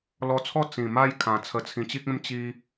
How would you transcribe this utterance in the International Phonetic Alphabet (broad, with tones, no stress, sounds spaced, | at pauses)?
l ɔ˧ t͡sʰ ɔ˥˧ t͡s ĩ˨˩ m a˥˧ j kʰ ã˨˩ t͡sʰ ə˧ t͡sʰ ĩ˧ t͡ɕ i˦ k̚ ẽ˦ m t͡ɕ i˧